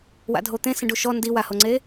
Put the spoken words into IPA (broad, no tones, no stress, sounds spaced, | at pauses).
w a̰ dʱ o t̪ ẽ s ẽ ɖ u ʃ ɔ n d i w a h o ŋ͡ǀ e